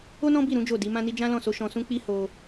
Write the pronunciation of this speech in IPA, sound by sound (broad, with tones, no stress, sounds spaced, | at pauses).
o˦ n ɔ̃˦ b i˦˨ ɾ ũ˨˦ d͡ʒ o˦˨ d i˨˦ m ã˦ n i˦ d͡ʒ ã˦ l ɔ̃˦˨ s o˧ ʃ ɔ̃˧ s ũ˦ k͡p i˦ h o˧